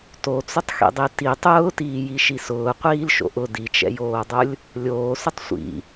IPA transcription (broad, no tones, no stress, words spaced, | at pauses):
tot͡sʊtˤxḭdˤi ti tˤʊːtiːjiʃi sʊːqʷiːlʃo̰ ʔʊ dit͡ʃɛ̰joːdˤʊlʲ | lʲoːsʊtˤ sʷḭ